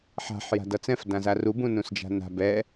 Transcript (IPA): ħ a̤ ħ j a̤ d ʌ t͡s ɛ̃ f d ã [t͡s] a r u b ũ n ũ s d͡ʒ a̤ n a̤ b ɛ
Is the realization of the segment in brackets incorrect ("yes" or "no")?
yes